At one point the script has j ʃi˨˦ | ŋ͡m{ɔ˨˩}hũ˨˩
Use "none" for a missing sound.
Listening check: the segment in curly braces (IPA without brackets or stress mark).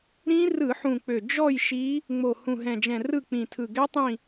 o˨˩